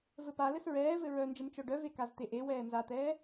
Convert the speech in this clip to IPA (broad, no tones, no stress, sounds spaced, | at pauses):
v ɘ p a l ɘ s ɹ ɛː v ɘ ɹ œ n d͡ʒ ɘ m t͡ʃ œ ɖ œ v e k a z t̪ e ʔ e w ɛː n z a t̪ ɛː